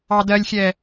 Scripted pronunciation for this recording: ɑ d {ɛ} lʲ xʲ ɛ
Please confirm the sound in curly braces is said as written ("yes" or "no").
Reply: no